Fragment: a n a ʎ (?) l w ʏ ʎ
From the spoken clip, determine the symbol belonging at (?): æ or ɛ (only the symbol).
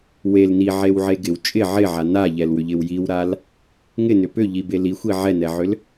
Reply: ɛ